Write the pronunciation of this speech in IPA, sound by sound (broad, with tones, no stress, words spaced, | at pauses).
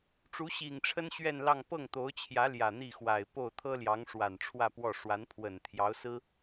ʈ͡ʂu˧˥ɕi˨˩ŋʈ͡ʂʰə˥n ɕɥɛ˥˧nlɑ˥˧ŋ pɤ˥˩ŋt̪o˧˥ʊ̯t͡ɕʰjä˧˥ ljä˨˩n̪i˥˩xwa˨˩ɪ̯po˥˩ʊ̯ t̪ʰɤ˥ljɑ˧˥ŋʂwa˨˩n ʈ͡ʂʰwä˥˧pwɔ˥˩ ʂwa˧˥npʰwə˨˩n t̪ʰjɑ˧˥ʊ̯sɹ̩˥